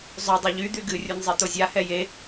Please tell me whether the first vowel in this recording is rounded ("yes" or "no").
yes